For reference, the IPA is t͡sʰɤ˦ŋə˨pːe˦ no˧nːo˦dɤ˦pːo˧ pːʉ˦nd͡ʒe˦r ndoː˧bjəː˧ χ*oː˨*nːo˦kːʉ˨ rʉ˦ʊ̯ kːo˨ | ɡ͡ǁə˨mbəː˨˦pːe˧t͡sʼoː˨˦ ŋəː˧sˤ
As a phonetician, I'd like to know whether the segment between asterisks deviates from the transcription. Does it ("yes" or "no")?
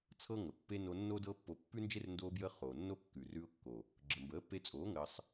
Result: no